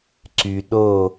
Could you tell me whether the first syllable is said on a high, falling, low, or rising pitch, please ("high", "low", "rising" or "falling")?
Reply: low